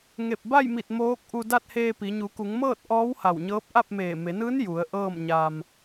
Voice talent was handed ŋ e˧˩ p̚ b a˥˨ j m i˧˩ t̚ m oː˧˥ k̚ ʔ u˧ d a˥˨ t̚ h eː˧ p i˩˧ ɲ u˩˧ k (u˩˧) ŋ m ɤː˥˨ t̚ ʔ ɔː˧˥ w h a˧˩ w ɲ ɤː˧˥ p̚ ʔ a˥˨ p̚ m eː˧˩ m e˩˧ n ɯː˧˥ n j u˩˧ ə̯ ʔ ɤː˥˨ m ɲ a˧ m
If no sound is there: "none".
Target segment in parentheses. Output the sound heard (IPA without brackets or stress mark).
u˩˧